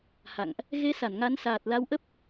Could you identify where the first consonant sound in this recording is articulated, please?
glottal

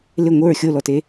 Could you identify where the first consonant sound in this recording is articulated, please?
alveolar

